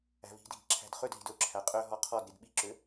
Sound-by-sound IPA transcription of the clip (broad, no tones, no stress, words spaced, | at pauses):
æ̤vi̤dʱi̤ ǁʰæ̤dχødɦi̤d ɵǁʰæ qʼøɦɔ qʰɔdɾid ɓiǁø